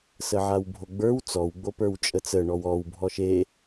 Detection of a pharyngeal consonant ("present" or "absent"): present